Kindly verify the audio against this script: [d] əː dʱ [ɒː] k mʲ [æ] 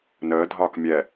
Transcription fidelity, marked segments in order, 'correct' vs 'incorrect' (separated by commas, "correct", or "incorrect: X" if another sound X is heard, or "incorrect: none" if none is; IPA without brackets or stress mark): incorrect: n, correct, incorrect: ɛ